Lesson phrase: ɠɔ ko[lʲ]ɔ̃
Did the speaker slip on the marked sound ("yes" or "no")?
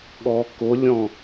no